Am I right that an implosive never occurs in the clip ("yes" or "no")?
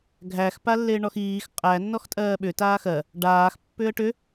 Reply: no